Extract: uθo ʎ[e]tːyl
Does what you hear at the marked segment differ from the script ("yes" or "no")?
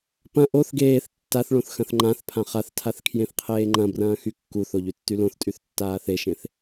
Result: yes